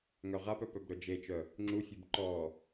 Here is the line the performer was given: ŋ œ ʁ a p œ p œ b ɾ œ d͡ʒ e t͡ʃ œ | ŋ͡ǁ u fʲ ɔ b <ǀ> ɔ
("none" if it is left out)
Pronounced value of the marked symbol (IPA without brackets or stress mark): ǃ